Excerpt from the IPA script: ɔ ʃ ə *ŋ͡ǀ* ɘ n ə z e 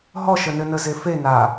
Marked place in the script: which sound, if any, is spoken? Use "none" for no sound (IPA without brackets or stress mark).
n